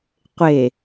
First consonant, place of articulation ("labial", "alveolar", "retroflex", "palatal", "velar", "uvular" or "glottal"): uvular